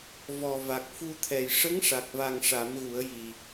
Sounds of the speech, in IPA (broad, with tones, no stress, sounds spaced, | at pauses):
v ɔ˨˩ v a˨˩ k̚ f u˧ t̪ʰ ɛ˨˩ j ʂ ə˧˥ ŋ ʂ a˨˩ k̚ v a˨˩ ŋ ʂ a˨˩˦ m ɣ u˨˩˦ ə̯ j i˨˩